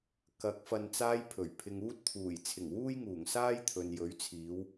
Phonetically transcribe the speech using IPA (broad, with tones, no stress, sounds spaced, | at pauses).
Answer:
k ɐ˨˥ k̚ f ɐ˨ n t͡s aː˧ j pʰ ɵ˨˩ ɥ pʰ ɪ˨ ŋ uː˥ t̚ t̪ʰ uː˨˩ j t͡sʰ ɪ˨˩ ŋ w uː˥ j ŋ uː˨˩ ŋ s aː˥ j t̪ʰ ɵ˨ n j ɵ˨˥ ɥ t͡sʰ iː˨˧ w